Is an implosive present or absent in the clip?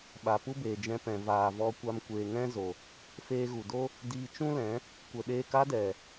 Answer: present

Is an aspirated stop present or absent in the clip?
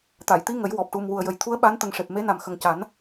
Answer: present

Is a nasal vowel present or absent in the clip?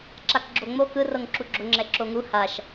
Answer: absent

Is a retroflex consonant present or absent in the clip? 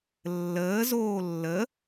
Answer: absent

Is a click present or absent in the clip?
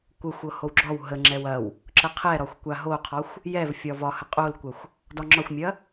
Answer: present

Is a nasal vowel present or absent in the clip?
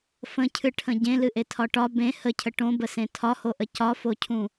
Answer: present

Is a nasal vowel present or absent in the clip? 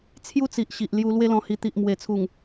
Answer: present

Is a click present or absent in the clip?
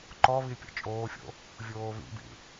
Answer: present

